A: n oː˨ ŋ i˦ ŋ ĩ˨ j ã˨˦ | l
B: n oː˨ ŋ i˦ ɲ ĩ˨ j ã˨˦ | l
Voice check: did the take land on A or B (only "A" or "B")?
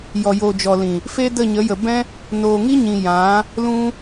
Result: B